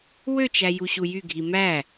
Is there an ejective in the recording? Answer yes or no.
no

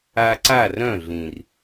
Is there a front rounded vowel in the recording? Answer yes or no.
yes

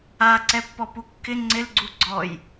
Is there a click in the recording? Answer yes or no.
yes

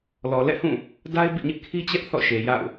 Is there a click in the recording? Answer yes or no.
no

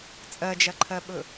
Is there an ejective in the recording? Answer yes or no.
yes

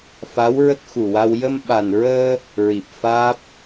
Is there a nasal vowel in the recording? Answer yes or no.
no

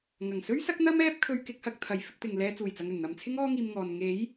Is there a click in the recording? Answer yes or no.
no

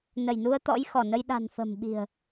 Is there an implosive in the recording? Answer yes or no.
yes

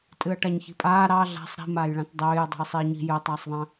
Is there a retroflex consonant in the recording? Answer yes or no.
yes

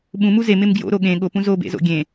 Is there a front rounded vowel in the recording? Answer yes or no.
no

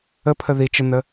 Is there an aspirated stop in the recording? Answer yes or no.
yes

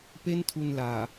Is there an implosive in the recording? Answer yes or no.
no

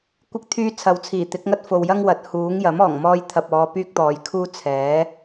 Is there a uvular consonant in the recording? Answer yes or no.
no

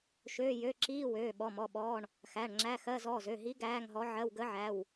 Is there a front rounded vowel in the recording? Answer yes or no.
yes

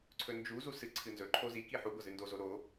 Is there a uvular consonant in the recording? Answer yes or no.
no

